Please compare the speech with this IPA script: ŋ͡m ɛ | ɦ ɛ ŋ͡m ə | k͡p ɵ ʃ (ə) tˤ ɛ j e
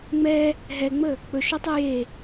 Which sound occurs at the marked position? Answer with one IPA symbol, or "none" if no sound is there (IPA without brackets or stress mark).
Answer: ɵ